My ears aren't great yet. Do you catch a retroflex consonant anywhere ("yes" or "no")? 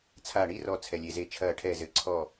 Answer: yes